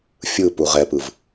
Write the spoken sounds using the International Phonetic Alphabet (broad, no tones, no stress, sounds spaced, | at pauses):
fʲ ɯ p u ʁ ɛ p ɯ v